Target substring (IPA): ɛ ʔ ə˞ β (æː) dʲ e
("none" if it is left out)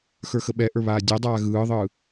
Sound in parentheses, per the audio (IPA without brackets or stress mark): aː